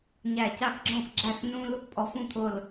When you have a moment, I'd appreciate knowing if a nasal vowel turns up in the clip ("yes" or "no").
yes